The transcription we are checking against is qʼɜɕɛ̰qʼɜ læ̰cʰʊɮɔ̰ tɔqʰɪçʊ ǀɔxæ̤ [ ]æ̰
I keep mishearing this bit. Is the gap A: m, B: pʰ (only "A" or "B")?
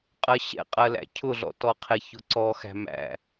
A